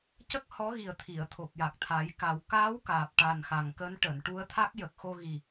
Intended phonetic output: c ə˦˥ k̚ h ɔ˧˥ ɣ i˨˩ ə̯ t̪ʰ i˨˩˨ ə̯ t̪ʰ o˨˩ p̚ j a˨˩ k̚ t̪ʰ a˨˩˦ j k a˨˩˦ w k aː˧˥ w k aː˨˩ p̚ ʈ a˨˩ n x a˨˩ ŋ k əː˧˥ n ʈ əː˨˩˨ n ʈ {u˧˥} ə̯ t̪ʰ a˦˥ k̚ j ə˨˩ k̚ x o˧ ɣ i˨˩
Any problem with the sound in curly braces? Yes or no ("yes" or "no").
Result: no